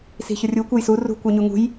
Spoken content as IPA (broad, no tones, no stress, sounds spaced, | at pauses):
s i̤ ç ʊ rʲ u kʷ ʌ j s u r ṳ kʷ ə˞ ɲ u ŋ ṳ j